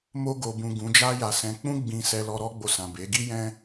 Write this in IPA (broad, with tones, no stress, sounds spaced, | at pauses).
m o˧ ɡ o˨ b ũ˨ ɡ ũ˨˦ d͡ʒ a˦ j a˧ s ɛ̃˧ k͡p ũ˦ ɡ͡b ĩ˧ s ɛ˧ l ɔ˧ ɾ ɔ˦ ɡ͡b o˧ s ã˨ b e˨˦ ɡ i˦ j ɛ̃˦